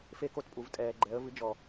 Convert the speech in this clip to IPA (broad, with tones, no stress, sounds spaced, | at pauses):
f e˦ k o˦ t pʼ u˨ v tʼ ɛː˨ ɡ͡ǃ ɛ˨˦ ə̯ v ɨ˨˦ d͡ʒ ɔ˨